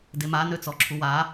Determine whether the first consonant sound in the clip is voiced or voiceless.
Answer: voiced